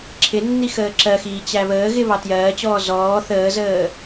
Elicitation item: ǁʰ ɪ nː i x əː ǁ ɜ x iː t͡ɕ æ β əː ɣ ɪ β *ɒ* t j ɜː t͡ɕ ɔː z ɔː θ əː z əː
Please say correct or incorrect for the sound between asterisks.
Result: incorrect: ɑ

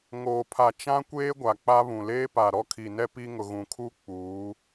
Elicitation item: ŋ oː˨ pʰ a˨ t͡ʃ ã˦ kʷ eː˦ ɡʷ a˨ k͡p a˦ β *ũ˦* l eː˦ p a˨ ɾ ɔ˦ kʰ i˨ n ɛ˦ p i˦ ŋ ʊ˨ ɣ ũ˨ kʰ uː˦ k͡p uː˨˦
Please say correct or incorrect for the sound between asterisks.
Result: incorrect: ũ˨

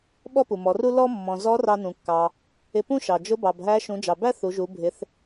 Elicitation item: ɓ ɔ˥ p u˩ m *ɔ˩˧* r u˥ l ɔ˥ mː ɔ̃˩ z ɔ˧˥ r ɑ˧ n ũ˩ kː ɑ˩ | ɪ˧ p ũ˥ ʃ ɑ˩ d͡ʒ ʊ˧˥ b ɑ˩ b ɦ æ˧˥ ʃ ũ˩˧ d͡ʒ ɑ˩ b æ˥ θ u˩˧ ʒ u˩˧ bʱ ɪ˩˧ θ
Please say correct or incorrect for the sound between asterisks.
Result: correct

